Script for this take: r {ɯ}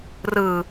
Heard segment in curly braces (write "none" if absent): ɯ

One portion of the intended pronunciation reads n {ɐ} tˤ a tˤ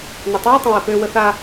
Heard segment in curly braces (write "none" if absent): ɐ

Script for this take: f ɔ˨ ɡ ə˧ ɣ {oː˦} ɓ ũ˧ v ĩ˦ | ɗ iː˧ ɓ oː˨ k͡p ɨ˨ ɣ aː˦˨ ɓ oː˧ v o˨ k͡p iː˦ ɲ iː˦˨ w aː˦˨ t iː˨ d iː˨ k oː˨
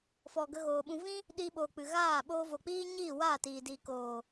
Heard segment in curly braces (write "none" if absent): oː˨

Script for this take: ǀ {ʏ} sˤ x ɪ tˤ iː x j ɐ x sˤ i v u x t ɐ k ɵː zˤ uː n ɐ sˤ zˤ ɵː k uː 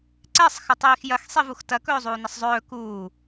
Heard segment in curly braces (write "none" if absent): ɛ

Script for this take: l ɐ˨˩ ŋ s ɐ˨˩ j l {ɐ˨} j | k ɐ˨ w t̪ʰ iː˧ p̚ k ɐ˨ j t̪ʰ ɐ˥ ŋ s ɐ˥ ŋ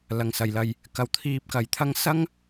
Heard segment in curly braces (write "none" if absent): ɐ˨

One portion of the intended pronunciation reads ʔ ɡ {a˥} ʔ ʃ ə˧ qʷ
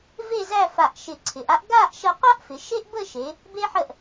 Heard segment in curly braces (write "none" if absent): a˥˧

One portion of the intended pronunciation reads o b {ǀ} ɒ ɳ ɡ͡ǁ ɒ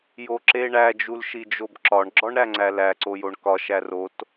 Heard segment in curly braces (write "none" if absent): ǁ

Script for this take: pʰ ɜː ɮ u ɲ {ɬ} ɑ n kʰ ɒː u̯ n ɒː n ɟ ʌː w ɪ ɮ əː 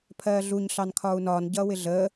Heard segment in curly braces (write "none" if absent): ɬ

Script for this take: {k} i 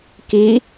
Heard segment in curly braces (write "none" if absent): k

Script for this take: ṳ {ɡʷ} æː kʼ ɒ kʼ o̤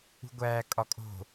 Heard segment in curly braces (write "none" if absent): ɡʷ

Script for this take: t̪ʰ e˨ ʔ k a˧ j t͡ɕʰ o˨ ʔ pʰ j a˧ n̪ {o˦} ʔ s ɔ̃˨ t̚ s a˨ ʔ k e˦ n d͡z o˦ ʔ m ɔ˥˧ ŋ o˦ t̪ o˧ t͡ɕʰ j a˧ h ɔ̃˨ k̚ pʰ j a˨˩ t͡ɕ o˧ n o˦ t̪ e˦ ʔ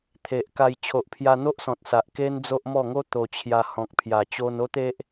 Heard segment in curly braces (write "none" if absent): o˦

